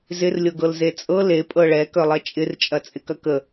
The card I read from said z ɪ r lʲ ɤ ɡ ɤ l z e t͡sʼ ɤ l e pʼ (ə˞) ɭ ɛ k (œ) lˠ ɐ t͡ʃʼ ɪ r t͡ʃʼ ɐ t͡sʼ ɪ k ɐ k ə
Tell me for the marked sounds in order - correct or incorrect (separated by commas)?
incorrect, correct